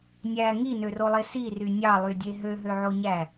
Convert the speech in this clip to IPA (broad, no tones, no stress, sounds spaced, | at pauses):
nʲ æ ŋ i n ø r o lˠ e s i r y nʲ ɑ lˠ y dʲ e ɦ ø ɦ ø ʕ o ɲ æ